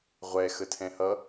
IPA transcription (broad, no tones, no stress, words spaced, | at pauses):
ʁʷɛ xətʰɛ̃hʌ